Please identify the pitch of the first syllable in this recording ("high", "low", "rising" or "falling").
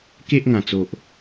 high